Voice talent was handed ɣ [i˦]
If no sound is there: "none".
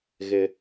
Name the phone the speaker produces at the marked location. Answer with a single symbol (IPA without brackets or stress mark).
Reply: ɪ˦